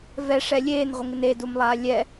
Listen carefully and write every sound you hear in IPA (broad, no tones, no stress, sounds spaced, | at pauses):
v ɛ ʂ ɛ lʲ eː n ʁʷ ɪ ŋ ɪ n e d u m lˠ aː lʲ ɛ